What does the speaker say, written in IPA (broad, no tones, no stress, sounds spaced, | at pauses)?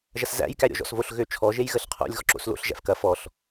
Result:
ʒ ɐ s z æ̰ j k æ ɾʲ ɔ̰ ʒ ɔ̰ s v o ɬ ɣ ø t͡ʃʰ ɔ ʒ e j ɣ ə ɬ qʰ o̰ lʲ ɣ ɔ ǁ o̰ s l o̰ ɬ ʒ æ̰ f k ɐ f ɔ ɬ